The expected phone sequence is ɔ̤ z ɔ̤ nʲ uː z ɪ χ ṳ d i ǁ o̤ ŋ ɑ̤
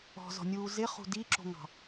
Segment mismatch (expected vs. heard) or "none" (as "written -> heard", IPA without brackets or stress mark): none